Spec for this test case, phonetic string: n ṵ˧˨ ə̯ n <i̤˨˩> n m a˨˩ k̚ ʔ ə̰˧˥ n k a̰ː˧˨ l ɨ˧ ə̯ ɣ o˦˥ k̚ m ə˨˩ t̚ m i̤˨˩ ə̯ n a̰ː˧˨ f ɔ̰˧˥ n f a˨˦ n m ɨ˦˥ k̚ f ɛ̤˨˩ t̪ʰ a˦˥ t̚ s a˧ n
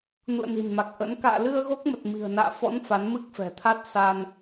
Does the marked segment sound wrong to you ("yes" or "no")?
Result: no